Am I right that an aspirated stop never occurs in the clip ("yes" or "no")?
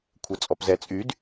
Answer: no